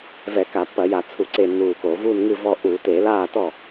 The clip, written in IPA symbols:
v ɛ˧˩˧ k a˧˩˧ pː ɐ˧˩˧ j a˧˩˧ t͡sʰ u˧˩˧ ǀ e˧˩ nː uː˧˩ k o˧˩˧ v uː˧˩ n ŋ ɨ˧˩ v ɔ˧˩ ʔ u˧˩˧ t e˧˩˧ l aː˧˩ t ɔ˧˩

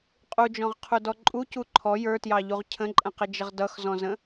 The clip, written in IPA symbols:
qʼ u d͡ʒ ɔ̃ ʁ qʰ u d ɔ ǃʼ u c u ǃʰ ɔ j ə˞ t j ɑ ʎ u ʁ cʰ ə̃ ǃʼ ə̃ q ɪ d͡ʒ ə ʁ d ʌ x z ɔ̃ z ə̃

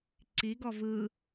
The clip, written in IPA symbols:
ǀ i ɡ ɔ v ɯ

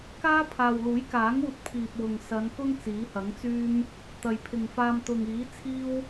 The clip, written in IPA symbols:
k aː˥ pʰ aː˨ w l uː˨˥ j k aː˨˥ ŋ uː˧ t̚ pʰ iː˨ p̚ w ʊ˨ ŋ s ɐ˨˧ n k ʊ˥ ŋ t͡s iː˨˥ h ɐ˨˥ ŋ t͡s yː˥ m | t̪ ɐ˨ j pʰ ɪ˨ ŋ f aː˧ m t̪ ʊ˨ ŋ iː˨˥ t͡sʰ iː˥ w

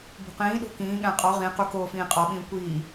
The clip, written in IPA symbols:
b o̤ q ĩː ɗ o̤ k ĩː ɠ æ̃ qʼ ɒ ʁ ĩ q u k oː f ĩː qʼ ɒ ɓ ĩː kʷ iː

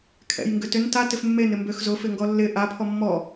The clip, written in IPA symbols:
kʰ ɛ̰ j ŋ ɡ ʏ t ʏ n t a t ɪ f mː e n ɪ m b ø x z ʊ f ɪ ŋ ɡ ɔ lː ɪ ʔ a pʰ ɔ mː ɔ

